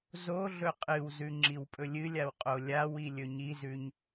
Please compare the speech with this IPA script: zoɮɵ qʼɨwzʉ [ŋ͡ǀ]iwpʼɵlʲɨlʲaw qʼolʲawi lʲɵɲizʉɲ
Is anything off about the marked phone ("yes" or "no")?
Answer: yes